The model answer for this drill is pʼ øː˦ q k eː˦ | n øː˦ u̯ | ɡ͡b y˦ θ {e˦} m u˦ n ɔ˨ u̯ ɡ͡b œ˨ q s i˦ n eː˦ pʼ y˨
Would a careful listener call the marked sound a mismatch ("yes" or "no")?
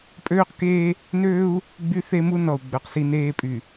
no